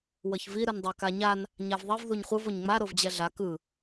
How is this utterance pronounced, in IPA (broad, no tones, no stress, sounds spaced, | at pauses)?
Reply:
w ʌ ç v i ɾ ɯ n dˤ a k a ɲ a n | ɲ a v ðˤ i v ð u ɲ χʷ ɯ v o ɲ ŋ͡m a ɾ o v d͡ʑ ɛ ɮ a k ɯ